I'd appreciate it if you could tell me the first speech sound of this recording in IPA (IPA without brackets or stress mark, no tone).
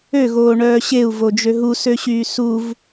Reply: ø